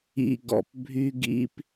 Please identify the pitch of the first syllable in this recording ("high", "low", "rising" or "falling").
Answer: low